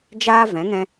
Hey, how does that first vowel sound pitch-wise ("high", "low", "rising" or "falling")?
high